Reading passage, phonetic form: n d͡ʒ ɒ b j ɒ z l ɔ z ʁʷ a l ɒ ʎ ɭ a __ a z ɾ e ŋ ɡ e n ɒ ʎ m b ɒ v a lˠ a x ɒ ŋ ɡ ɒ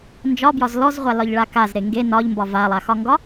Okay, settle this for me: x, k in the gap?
k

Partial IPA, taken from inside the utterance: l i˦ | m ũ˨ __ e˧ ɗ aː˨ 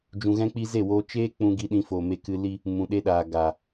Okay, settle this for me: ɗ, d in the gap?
ɗ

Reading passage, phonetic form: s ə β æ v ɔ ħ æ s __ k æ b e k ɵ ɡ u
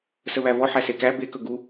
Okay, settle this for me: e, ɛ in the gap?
e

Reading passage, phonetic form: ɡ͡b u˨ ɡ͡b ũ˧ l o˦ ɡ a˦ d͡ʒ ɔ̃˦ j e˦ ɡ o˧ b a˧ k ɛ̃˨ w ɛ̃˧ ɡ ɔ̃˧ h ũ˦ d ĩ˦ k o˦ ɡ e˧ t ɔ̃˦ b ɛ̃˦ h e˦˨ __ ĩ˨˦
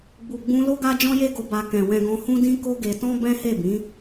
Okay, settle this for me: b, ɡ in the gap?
b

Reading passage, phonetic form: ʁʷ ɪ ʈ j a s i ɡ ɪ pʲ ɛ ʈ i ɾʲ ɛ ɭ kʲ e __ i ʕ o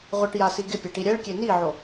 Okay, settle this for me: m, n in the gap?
n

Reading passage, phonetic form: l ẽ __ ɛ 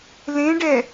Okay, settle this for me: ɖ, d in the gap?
ɖ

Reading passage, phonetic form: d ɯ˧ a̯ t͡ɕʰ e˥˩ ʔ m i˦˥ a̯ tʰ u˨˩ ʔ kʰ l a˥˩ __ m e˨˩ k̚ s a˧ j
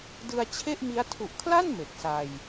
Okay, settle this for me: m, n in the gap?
n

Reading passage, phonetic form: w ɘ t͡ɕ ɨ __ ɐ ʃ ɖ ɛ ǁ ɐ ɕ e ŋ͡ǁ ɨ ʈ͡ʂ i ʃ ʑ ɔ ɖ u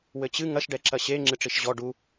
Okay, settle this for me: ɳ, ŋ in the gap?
ŋ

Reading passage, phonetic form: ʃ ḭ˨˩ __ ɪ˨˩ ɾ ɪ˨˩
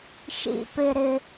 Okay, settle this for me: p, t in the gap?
p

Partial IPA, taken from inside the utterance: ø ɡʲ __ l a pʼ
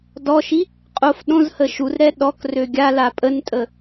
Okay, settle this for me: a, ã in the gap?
a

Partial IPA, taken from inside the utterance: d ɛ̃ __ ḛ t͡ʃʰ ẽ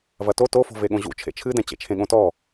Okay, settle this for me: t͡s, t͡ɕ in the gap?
t͡ɕ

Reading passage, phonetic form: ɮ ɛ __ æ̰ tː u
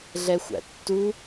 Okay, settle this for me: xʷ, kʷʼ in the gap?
xʷ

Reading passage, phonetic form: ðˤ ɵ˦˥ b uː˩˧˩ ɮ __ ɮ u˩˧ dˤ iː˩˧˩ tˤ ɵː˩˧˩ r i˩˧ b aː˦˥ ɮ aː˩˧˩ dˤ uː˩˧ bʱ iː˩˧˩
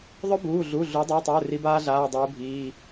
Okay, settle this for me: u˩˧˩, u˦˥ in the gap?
u˩˧˩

